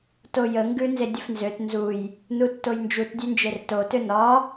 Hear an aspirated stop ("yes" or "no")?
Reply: no